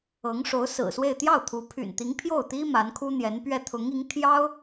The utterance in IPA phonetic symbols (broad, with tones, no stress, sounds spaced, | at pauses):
ɤ˧˥ ŋ ʂ o˧˥ ʊ̯ s ɹ̩˨˩ s w e˥˧ ɪ̯ t̪ j ɑ˥˩ ʊ̯ t̪ʰ u˧˥ pʰ y̰˨˩ n t̪ i˧˥ ŋ pʰ j o˥˩ ʊ̯ t̪ i˥ m a˧˥ n kʰ u˥ n̪ j ɛ˧˥ n p ɥ ɛ˥˩ t̪ʰ ʊ˧˥ ŋ i˧˥ ŋ t̪ʰ j ɑ˥ ʊ̯